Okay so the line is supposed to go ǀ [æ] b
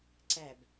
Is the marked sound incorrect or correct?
correct